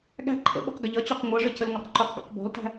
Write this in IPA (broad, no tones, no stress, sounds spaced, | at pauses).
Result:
ɠ æ̤ ǃʰ ə̰ ɓ ṳ q ɡ ə ʎ ʌ t͡ɕ ɔ q ŋʷ ʌ ʐ ə c ə l ŋʷ ʌ q ǃ ʊ q ɡ ɔ̰ q b ɔ̤ l t æ̤